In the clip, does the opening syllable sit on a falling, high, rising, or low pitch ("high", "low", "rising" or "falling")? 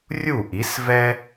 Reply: falling